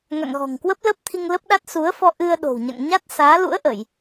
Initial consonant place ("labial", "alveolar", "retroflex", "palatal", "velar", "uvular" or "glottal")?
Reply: velar